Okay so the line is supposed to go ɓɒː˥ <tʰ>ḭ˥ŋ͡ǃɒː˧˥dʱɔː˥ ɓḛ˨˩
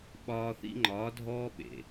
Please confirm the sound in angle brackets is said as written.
no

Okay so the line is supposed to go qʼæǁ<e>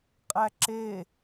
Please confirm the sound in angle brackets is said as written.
yes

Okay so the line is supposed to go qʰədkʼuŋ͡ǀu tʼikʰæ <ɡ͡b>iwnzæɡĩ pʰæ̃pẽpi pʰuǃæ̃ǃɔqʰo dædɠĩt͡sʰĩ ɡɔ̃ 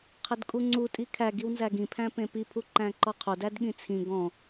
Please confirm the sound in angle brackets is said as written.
no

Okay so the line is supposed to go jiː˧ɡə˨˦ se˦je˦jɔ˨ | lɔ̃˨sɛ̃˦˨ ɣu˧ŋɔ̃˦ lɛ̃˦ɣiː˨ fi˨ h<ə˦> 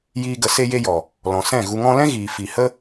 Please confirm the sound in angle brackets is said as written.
yes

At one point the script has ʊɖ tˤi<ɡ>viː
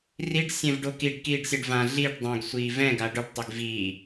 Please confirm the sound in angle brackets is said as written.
yes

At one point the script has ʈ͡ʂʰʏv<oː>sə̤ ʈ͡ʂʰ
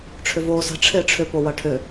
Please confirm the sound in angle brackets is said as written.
yes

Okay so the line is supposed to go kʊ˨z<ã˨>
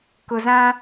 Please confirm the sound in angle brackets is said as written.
no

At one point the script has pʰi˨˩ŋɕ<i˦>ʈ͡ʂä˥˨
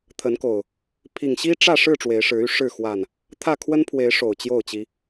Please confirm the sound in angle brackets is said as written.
yes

